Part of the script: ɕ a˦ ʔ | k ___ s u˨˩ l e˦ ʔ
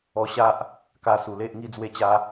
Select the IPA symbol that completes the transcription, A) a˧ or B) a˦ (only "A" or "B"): A